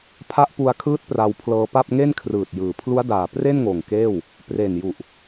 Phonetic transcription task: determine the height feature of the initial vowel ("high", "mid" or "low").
low